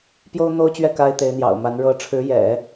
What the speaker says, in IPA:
p j o˥ ʊ̯ n̪ o˥ ʊ̯ t͡ɕ ɥ ɛ˥˩ k a˥ ɪ̯ t̪ e˧˥ ɪ̯ n̪ j ɑ̰˨˩ ʊ̯ m a˧˥ n ɻ ɤ˧˥ ʈ͡ʂʰ ɻ̩˧˥ j ɛ̰˨˩˦

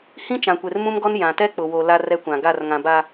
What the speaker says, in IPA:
h ĩ˦ t͡ʃ ã˨ kʷ e˨ r m ũ˦ m ɡ ɔ˦ n j ã˨ t ɛ˦ k͡p ʊ˨ w o˨ l a˦ r ɛ˦ kʷ ã˨ ɡ a˦˨ r ŋ ã˨ b a˨

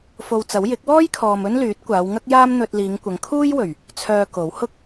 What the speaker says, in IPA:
f o˧ w t͡s ɐ˨˥ w j ɪ˨˥ k̚ w ɔː˥ j kʰ ɔː˨ m ɵ˥ n l yː˨˥ t̚ kʷ aː˨˧ w ŋ ɐ˥ k̚ j aː˥ m n̪ ɵ˧ t̚ l iː˨˧ ŋ kʷ ɐ˨˧ ŋ kʰ uː˥ j w ɵ˨˩ ɥ | t͡sʰ œː˧ k o˨˥ w h ʊ˥ k̚

